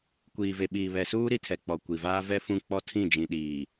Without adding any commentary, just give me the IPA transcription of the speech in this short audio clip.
kʷ iː˨ v e˨ ɓ iː˨ β ɛ˨ s uː˦ ɾ i˦ tʰ ɛ˨ k͡p ɔ˨ kʷ i˨ v aː˦ v ɛ˦ f ũ˦˨ k͡p ɔ˦ tʰ ĩ˦˨ d͡ʒ ĩ˨ ɗ iː˨

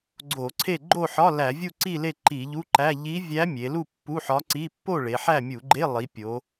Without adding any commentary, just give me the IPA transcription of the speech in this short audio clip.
ɡ͡ǀ o˧˩˧ ǀʰ e˥˨ ɡ͡ǃ o˥˨ ħ ɒ˧˥˧ l æ˧˩˧ vʲ u˥˨ ǀ i˥˨ l e˥˨ ǃ i˧˩˧ ʎ u˧˥˧ ǃ æ˧˥˧ ʎ i˧˥ vʲ æ˧˥ mʲ e˩˧ l u˥˨ pː u˧˥˧ ħ ɒ˧˥ ǀ i˧˥˧ pː o˥˨ ɭ e˩˧ ħ æ˥˨ mʲ u˧˩˧ ɡ͡ǃ e˧˥˧ lˠ i˩˧ pʲ o˩˧

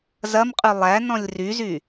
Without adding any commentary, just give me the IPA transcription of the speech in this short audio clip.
z ɐ m qʼ ʉ lˠ æ n ɔ̃ lʲ r y z y

